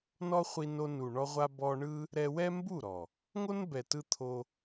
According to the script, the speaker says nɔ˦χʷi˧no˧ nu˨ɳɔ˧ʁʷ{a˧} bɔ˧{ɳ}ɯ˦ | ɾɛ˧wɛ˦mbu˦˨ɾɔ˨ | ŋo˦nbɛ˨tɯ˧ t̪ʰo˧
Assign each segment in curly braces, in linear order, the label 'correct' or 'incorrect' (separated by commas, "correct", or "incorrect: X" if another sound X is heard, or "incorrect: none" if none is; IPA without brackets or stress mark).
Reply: correct, correct